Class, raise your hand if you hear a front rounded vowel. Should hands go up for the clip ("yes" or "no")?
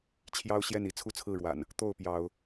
no